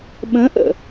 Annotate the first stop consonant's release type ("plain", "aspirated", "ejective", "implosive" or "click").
implosive